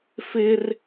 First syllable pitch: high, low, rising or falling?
high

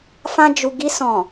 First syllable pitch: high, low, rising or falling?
high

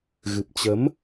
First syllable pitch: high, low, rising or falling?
low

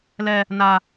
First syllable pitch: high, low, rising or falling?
high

